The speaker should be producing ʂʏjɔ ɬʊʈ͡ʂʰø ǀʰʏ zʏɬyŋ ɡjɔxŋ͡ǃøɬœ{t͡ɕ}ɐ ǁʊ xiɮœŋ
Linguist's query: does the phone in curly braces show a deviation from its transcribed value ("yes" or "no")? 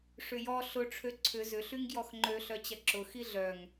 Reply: no